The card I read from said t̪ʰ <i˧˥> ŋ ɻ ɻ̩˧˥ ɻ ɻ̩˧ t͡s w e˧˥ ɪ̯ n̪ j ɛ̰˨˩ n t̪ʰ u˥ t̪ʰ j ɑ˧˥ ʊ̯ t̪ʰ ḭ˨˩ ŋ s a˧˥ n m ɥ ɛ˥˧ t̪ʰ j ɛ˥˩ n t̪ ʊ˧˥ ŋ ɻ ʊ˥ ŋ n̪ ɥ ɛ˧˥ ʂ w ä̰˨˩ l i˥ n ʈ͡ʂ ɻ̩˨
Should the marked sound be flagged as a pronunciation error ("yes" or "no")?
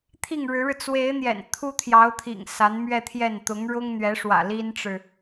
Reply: yes